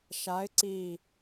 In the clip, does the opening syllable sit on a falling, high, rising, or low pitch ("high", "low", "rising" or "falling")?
rising